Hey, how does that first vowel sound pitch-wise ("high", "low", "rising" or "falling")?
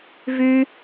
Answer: high